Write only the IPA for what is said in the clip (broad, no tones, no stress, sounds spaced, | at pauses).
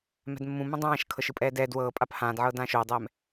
m ɛ̤ d mː ũ m ũ dˤ ãː ʃ kʰ ɤ ʃ ɯ pʼ ɛː d ɛ d w ɤː pʼ a p h ãː d ʕ ɤː d ãː ʃ oː dˤ ɛː m